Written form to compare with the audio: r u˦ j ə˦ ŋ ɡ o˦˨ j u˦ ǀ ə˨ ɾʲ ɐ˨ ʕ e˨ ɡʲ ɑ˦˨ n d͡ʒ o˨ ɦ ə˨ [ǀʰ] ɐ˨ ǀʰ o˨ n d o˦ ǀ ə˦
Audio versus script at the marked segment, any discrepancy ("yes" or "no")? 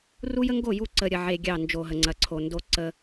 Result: yes